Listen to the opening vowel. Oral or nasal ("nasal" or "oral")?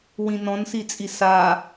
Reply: nasal